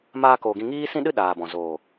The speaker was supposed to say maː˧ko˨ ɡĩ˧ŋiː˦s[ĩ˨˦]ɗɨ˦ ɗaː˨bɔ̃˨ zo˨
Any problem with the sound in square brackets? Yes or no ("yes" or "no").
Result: yes